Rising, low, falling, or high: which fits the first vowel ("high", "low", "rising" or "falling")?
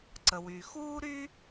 low